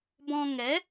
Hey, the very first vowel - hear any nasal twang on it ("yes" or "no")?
yes